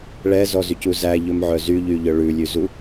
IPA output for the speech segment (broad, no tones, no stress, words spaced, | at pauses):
ɭɛzɔzycu zæʎɵmʕœ zyʎyʎœ ɭʉlʲʉzu